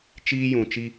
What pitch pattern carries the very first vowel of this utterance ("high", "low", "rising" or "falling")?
high